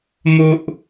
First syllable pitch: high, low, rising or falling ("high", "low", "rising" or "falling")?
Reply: high